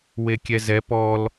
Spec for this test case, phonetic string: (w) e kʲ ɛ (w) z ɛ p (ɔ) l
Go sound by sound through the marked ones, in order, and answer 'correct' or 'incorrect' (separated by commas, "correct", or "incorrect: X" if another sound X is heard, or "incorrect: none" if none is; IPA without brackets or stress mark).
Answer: correct, incorrect: none, correct